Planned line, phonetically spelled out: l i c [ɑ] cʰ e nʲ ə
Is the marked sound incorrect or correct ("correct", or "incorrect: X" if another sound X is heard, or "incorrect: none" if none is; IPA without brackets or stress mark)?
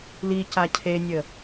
incorrect: a